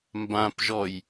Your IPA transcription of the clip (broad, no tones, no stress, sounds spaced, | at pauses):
m b ã p ʒ ɔ j